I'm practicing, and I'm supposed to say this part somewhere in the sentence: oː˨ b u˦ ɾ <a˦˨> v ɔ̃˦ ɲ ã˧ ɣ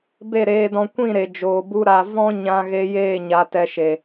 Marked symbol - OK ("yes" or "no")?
no